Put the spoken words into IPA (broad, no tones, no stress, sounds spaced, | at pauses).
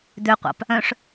d̪ ø qʷ ɑ̰ p | œ̃ ʂ